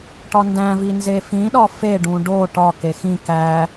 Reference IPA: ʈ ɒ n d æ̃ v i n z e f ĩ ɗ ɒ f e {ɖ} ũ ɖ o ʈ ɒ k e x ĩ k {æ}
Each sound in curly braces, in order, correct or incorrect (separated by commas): correct, correct